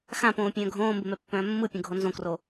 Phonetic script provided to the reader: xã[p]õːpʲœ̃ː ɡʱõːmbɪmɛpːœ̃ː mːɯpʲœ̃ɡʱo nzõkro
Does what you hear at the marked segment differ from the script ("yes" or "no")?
no